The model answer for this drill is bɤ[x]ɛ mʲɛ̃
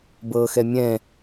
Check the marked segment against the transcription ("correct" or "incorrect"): correct